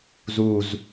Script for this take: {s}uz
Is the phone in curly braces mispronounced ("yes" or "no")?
yes